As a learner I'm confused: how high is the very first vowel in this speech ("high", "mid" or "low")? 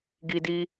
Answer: high